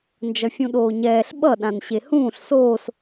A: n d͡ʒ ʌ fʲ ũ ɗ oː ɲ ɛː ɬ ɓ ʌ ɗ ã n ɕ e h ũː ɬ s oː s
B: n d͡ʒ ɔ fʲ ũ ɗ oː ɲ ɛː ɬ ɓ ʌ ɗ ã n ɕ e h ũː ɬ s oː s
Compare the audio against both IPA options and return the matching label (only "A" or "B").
A